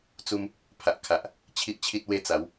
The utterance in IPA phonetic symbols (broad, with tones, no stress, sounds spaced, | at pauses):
t͡s u˧ m | pʰ a˨ ʔ kʰ a˨ ʔ | t͡ɕʰ i˦ ʔ t͡ɕʰ i˦ t̚ w e˦ t͡s a˨˦ w